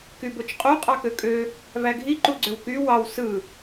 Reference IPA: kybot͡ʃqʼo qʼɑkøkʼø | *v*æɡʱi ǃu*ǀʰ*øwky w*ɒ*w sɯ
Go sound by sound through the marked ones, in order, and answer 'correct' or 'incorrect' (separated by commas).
correct, incorrect, incorrect